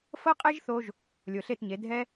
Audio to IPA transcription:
f ɤ˦ qʼ e˦ ʒ θ o˧ ʒ | lʲ o˨ ɬ e˦˨ t ɲ e˨˦ dʱ ɛ˦

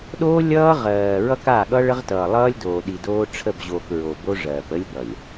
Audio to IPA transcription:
ɗ oː˦ lʲ ʌː˦ ʁ ɜː˨ ɹ ʌ˦ k a˦˨ ɠ ʌ˦ ɭ ə˦ ʁ t ʌː˨ lˠ ʌː˦ lʲ d oː˨ ɗ i˨ d oː˦ ʈ͡ʂʰ ə˦˨ b ʑ oː˨ k ɹ o˨ b o˦ ʐ ɜː˨ p ə˦ lʲ ɠ ʌ˨ lʲ

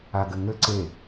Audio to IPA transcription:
a ɡ ɘ ŋ ɘ ǀ e

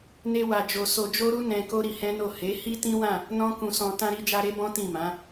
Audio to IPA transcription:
n e˦ w a˧ d͡ʒ o˧ s o˧ d͡ʒ o˦ ɾ u˦ n ɛ̃˧ k o˦ ɾ i˧ h ɛ̃˦ n o˦˨ h e˨˦ h i˦ t ĩ˦ w ã˦˨ | n ɔ̃˦ k ũ˧ s ɔ̃˧ t ã˧ ɾ i˧ d͡ʒ a˧ ɾ e˦ b ɔ̃˦ t ĩ˦˨ m ã˨˦

